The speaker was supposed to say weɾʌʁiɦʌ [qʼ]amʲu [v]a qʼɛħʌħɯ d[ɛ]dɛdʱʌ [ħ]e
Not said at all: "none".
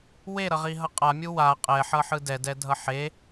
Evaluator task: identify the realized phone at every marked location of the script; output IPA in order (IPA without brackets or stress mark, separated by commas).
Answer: qʼ, w, ɛ, ħ